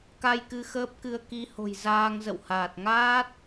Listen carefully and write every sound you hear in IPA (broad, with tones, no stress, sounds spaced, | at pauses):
k a˧ j k ɨ˧ x əː˦˥ p̚ k ɨ˧ ə̯ k i˨˦ h o̤˨˩ j z aː˧ ŋ z ə̰˧˨ w h aː˨˩ t̚ ŋ aː˦˥ t̚